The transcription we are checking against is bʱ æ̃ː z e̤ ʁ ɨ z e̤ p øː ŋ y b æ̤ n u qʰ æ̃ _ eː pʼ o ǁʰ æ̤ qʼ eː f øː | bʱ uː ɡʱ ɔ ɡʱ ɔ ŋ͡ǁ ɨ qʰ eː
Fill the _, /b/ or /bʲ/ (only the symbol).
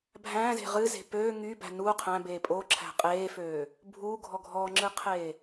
b